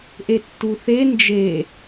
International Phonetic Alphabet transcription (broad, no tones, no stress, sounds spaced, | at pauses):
ʔ e tː u θ e n d͡ʒ e